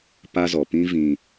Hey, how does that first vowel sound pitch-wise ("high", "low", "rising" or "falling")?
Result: high